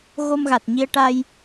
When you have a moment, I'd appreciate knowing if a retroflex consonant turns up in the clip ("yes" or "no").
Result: yes